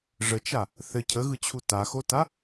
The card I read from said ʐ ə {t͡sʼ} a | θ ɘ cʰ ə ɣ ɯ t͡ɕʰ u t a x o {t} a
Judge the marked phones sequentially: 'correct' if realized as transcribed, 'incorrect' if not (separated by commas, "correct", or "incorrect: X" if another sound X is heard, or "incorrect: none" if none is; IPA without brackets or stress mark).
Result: incorrect: t͡ʃ, correct